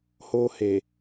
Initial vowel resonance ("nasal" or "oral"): oral